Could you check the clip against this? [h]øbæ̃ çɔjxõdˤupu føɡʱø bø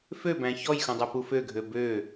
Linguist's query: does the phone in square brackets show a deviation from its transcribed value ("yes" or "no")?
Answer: yes